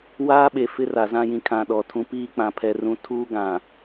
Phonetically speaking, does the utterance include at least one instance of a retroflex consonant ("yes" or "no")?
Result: no